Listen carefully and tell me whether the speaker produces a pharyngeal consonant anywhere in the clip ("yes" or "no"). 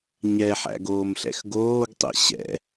yes